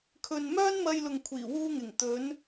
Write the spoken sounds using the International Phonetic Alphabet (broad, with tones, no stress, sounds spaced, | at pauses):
kʰ ɵ˨ n m œː˥ n m ɐ˧ j l ʊ˨ ŋ kʷʰ iː˨˩ w uː˧ ŋ ɪ˨˩ ŋ t̪ ɵ˨˧ n